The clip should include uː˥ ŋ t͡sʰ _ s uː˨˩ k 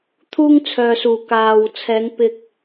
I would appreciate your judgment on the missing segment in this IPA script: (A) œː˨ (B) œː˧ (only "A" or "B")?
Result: A